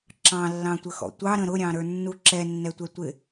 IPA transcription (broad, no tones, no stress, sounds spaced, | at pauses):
ǁ ɑ̃ lː ɑ̃ tʷ ə x ɔ̰ tʷ ɑ ɾ ə̃ ɾ ʊ ɾʲ ɑ̃ ɾ ə˞ nː u ǁ ɛ nː ɛ tʷ ɛ tʷ ɪ